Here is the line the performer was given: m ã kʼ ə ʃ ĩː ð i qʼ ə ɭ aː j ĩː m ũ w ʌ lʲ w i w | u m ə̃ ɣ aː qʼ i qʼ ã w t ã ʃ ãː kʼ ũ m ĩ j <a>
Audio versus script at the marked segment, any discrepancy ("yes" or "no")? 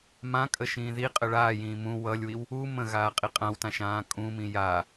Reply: no